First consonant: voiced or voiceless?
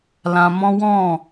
voiced